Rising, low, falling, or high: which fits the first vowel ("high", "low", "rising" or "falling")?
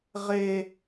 high